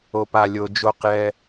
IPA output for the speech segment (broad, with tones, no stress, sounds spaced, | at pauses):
o˨ p a˨ lʲ o˨ d͡ʒ o˦˨ q j ɛ˦